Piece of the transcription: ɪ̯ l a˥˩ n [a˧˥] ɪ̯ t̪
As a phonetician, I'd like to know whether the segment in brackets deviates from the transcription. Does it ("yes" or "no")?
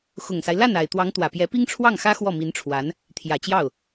yes